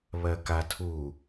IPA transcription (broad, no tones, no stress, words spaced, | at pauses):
βɜkatʰu